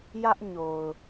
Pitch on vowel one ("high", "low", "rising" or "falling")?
high